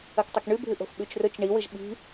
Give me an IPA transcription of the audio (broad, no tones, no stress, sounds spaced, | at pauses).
ɐ k tˤ ɐ k ɳ ʉ bʱ ɨ ʔ o̤ f ɓ ʉ t͡ʃ r ɵ t͡ʃ ɳ i w ɨ ʒ ɓ i̤